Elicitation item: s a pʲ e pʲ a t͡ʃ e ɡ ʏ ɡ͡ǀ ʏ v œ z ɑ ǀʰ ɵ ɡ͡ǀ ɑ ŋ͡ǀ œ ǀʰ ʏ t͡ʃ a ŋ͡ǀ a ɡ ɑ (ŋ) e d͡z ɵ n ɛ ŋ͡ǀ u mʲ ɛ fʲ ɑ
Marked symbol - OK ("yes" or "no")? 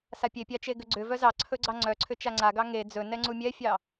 yes